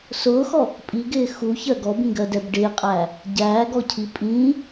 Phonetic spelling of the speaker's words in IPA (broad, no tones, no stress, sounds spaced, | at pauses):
s ʊː x ɔ | pʼ i ɡ ɪː x u ç ɜ ɡ ɔ b ĩ ɡ ɜ d ɛ b ɖ ɪː qʼ æː | ɟ æː ɡ ɔ cʰ i pʼ ĩː